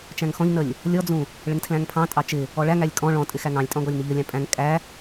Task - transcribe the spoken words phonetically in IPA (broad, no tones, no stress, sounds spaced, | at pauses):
t͡ʃ æ̃ ŋ x ɔ̃ ʎ n ə lʲ | lʲ ɔ d͡z ũ | ɭ ɪ ŋ tʰ l æ̃ ŋ pʰ ɑ̃ tʼ ɑ t͡ʃ ɪ | ɔ ɭ æ ŋ æ lʲ kʼ ɔ̃ ɭ ɔ̃ tʼ ɪ x æ ŋ ɑ̃ lʲ tʼ ɔ̃ ɡ ɔ lʲ n ə ʎ ə lʲ ɑ̃ pʼ æ̃ ŋ kʼ æ